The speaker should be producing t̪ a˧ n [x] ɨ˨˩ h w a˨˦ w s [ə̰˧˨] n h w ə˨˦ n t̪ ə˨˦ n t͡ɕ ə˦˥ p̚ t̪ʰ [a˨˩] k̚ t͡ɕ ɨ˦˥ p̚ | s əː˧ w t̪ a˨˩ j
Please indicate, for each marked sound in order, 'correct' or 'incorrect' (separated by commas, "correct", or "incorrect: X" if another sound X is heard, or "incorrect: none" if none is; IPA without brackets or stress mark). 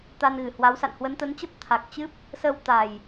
incorrect: ɣ, incorrect: a̰˧˨, correct